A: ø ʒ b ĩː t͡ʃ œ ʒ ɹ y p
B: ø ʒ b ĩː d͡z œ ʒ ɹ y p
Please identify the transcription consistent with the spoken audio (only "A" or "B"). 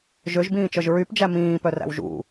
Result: A